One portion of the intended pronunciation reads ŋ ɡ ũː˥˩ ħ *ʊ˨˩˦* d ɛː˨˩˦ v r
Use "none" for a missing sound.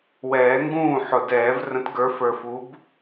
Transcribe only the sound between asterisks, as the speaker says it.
ʊ˨˩˦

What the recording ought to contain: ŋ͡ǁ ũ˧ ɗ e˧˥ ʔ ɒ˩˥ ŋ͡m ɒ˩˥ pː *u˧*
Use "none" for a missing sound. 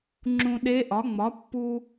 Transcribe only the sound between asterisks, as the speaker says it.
u˧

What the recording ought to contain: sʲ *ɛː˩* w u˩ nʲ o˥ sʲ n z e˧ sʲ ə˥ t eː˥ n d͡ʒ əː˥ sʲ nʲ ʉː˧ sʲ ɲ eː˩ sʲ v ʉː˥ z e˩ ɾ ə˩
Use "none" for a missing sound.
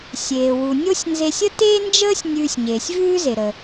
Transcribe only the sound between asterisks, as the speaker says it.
eː˩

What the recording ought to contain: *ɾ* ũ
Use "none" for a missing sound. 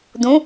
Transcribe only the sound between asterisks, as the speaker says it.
d̪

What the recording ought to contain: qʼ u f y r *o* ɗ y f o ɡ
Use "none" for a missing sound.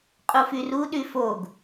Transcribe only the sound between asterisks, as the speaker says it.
u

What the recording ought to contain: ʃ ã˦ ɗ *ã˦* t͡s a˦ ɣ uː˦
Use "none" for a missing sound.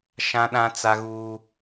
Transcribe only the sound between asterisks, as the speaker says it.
ã˦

